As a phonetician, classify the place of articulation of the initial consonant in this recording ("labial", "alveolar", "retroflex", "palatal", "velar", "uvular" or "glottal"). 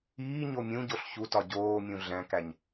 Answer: palatal